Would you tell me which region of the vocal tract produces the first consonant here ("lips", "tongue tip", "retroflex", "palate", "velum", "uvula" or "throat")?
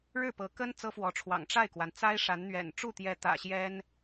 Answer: retroflex